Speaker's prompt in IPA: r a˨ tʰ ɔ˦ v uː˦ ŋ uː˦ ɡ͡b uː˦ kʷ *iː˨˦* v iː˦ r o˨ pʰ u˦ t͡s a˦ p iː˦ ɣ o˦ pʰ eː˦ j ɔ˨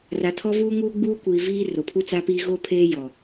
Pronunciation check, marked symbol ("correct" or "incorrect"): incorrect